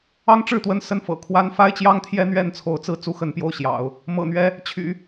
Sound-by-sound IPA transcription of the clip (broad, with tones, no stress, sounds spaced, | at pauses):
ɑ˥ ŋ ʈ͡ʂ ɻ̩˥˩ t̪ w ə˧˥ n s ə˥˩ n f ɤ̰˨˩ kʰ w a˥ n f a˥ ɪ̯ t͡ɕ j ɑ˥ ŋ t̪ʰ j ɛ˥ n̪ ɥ ɛ˥˩ n t͡sʰ o˧˥ ʊ̯ t͡s ɹ̩˥˩ t͡s u˥ x ə˧˥ n p j o˥˩ ʊ̯ ɕ j ɑ̰˨˩˦ ʊ̯ | m ɤ̰˨˩ n̪ ɥ ɛ˧˥ | t͡ɕʰ y̰˨˩˦